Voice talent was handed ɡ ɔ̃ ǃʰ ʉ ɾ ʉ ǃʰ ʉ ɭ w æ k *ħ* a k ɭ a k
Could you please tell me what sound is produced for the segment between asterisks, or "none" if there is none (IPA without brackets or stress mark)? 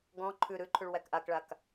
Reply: ʔ